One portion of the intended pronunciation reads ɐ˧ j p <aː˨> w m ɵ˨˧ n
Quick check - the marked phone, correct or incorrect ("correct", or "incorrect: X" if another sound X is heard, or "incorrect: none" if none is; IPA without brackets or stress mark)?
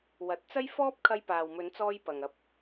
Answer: correct